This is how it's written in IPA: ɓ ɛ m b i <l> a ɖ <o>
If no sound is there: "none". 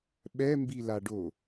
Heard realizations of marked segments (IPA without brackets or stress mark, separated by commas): l, o